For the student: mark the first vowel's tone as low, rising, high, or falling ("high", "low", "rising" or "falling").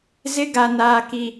high